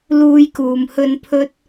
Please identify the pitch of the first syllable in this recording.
high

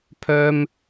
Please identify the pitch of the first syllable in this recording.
low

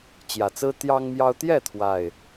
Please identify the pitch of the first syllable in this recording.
low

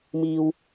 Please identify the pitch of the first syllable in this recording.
low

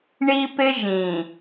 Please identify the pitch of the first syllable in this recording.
high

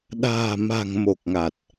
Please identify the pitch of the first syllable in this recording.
low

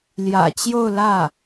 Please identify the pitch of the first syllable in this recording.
low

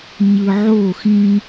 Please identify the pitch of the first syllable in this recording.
low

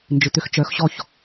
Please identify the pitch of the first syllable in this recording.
low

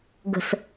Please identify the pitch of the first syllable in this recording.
low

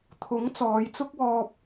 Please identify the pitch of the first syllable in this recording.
rising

